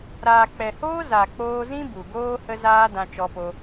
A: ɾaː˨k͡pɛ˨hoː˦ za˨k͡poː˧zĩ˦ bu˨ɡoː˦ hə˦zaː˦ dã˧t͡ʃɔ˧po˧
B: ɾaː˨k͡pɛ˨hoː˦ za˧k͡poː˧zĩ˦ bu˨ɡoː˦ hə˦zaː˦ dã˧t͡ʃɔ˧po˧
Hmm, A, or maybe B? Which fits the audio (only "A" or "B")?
A